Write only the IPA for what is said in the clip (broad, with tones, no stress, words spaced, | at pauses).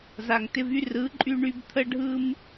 za˨ŋtɪ˧vy˦rɯ˨˦ ǃʼy˦ɳy˦b t̪ʰə˦ɖʱɯ˦m